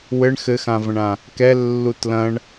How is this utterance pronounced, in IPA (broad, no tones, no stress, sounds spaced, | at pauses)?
w ɘ ɳ x ɘ x ã v ɐ̃ ɳ ã | k ɛ lː u t l ɐ̃ ɳ